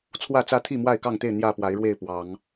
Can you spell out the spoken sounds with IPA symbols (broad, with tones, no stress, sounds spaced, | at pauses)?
t͡sʰ w ä˥˨ t͡s ä˦ t̪ʰ i˥˨ m w a˥˨ ɪ̯ k ɑ˥˨ ŋ t̪ e˥˨ ɪ̯ n̪ j ä˥˨ p w a˨˦ ɪ̯ ɻ w e˥˨ ɪ̯ p w ɑ˨˦ ŋ